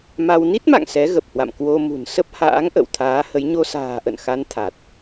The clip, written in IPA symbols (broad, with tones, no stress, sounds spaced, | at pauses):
m a˧ w n i˦˥ t̚ m a̰˧˨ ŋ s ɛ˨˦ ɣ ə˨˩ p̚ h w a̰˧˨ m k w o˧ m ṳ˨˩ n s ə˦˥ p̚ h a̰ː˧˥ ŋ ʔ ə̰˧˨ w t̪ʰ aː˨˦ h ə˨˦ j ɲ o˧ s a̤ː˨˩ ʔ ə̰˧˨ n x a˨˦ n t̪ʰ a˨˩ t̚